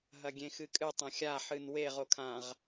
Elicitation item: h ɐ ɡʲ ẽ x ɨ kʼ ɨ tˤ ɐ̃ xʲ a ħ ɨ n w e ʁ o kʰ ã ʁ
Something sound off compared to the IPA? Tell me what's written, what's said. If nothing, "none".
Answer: h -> ɦ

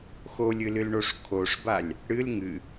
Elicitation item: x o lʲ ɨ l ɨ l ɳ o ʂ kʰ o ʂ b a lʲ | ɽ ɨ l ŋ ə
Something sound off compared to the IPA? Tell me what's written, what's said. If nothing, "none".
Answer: ə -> ɨ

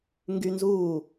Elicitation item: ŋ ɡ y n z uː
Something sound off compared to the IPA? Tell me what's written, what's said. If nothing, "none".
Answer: none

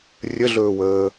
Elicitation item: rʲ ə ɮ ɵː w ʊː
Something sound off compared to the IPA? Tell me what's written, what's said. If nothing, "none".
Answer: ʊː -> əː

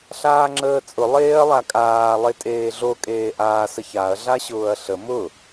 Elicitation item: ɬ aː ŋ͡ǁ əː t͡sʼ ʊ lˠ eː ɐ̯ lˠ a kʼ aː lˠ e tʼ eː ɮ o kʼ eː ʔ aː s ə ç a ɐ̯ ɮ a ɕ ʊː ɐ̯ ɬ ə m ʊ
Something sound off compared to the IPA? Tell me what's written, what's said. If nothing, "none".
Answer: none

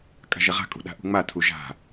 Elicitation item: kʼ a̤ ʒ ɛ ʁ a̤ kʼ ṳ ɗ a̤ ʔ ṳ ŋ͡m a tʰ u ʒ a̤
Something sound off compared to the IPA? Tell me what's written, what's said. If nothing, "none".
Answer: none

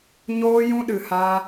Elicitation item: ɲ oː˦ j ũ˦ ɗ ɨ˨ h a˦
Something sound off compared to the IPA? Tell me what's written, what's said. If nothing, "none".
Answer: none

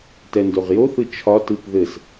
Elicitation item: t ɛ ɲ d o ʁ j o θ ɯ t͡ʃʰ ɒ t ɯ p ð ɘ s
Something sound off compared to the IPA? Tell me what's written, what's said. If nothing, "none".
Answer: ɲ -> n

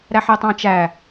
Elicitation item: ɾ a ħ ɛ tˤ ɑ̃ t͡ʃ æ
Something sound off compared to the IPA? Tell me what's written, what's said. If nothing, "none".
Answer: a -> æ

